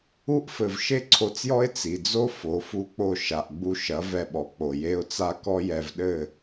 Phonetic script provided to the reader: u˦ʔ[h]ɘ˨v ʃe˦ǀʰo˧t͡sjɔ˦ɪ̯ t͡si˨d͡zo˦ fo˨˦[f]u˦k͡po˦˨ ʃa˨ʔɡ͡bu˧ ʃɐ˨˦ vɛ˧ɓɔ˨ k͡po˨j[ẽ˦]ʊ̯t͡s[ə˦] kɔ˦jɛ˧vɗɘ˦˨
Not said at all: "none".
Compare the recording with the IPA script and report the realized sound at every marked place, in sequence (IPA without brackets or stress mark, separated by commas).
f, f, e˦, a˦